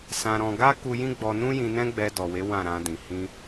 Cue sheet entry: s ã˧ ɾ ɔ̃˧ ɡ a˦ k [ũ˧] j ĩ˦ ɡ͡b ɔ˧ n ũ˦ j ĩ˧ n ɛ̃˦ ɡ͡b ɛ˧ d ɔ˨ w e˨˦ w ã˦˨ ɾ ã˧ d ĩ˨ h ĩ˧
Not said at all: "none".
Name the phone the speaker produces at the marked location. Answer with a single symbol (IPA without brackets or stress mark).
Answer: u˧